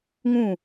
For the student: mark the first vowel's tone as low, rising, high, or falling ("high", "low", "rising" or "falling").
falling